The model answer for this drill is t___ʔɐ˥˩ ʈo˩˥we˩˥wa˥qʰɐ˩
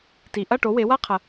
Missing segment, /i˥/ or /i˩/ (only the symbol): i˩